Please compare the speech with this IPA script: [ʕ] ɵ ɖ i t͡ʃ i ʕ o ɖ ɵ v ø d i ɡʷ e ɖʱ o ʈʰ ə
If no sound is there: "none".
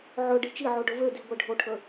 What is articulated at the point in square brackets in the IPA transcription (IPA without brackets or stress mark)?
ʕ